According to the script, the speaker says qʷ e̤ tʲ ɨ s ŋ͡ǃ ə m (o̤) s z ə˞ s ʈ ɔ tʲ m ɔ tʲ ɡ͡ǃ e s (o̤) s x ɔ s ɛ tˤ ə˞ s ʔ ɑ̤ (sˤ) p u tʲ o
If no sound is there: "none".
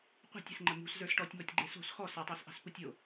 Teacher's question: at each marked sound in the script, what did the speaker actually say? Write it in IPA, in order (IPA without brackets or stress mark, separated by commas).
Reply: ṳ, o̤, s